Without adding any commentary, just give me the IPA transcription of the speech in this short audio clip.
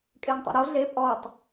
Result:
kʼ e ŋ tˤ ṵ ɾ o ɮ e pʼ ɔ tˤ

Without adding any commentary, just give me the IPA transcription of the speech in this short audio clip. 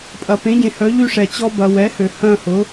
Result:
pʼ ɐ˩ p ẽ˩˥ ɟ ẽ˩ h œ˩˥ ʎ y˦ ʂ ɛ˩ t͡ɕ ɔ˦ b ɐ˩˧ w ɛ˩˥ h ø˩ h œ̃˦˨ h ʊ˩˥

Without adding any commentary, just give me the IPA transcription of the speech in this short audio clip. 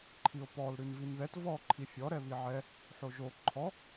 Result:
ǃʰ i o̯ p ɔ l ɾ ʉ n v i n ð ɛ t v ɔ ǃʰ i fʲ ɔ ɾ ɛ β i ʕ ɛ | ħ o ʒ o ǃʰ ɔ

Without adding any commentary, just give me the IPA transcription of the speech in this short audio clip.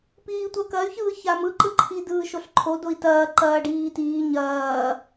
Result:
p iː tʷ ɐ k ɐ y̯ ç ɯː ç a m ɯ ǃ ɯ ǃʰ i d ɯː ʃ o ɬ ǃʰ o d o i̯ t ɐː ǃ ɐː ɖ iː t iː ɲ ɐː

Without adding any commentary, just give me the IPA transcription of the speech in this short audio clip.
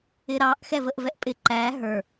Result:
ɪ ɾ ɑ ʔ x ɛ v ə ʔ v ɛ ʔ pʼ ɪ ǃ æ ɦ ə˞

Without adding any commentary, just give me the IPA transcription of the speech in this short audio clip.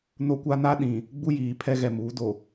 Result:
n o˦ kʷ a˦ n a˦ ɗ ĩ˨ | ɡ͡b u˦ j iː˨ pʰ ɛ˦ ɣ ɛ˨ m uː˨˦ d o˨

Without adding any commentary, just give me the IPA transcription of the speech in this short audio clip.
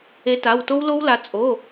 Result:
e˨˦ t a˩˧˩ w t o˦˥ w l o˦˥ w l a˨˦ t͡sʼ o˩˧˩

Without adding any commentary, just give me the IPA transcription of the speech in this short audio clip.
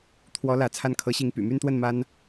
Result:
t̪ʰ w ɔ˧˥ l ä˧˥ t͡sʰ a˥˩ n kʰ ɤ˧˥ ɕ i˧˥ ŋ p y̰˨˩ m y˥˧ n t̪ w ə˥˩ n m a˥ n

